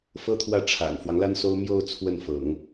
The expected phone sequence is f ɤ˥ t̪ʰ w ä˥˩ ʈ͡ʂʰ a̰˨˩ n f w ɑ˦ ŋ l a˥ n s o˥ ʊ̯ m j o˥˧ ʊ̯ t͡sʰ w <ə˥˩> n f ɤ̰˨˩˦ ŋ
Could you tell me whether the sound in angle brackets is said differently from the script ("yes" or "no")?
no